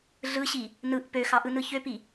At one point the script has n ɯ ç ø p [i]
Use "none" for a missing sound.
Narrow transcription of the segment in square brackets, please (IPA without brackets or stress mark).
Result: i